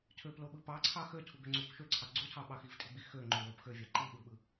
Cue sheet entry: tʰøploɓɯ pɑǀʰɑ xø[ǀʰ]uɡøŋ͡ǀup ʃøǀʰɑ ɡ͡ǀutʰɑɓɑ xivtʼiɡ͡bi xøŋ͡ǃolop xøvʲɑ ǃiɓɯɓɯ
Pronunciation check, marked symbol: incorrect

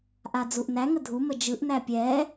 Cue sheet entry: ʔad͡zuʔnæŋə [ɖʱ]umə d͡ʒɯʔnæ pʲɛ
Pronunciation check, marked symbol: incorrect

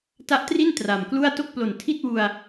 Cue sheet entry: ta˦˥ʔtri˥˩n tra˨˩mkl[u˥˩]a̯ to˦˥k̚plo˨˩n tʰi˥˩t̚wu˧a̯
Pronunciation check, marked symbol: correct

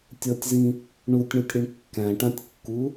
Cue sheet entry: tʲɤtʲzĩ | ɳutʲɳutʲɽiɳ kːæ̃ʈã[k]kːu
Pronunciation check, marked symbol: incorrect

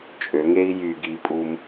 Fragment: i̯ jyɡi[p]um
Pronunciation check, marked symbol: incorrect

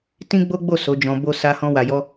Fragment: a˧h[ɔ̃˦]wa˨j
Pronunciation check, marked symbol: incorrect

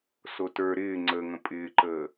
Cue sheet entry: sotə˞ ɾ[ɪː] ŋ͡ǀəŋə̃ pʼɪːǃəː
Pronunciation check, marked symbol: correct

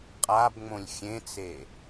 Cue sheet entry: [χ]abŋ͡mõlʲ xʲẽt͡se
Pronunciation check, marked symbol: incorrect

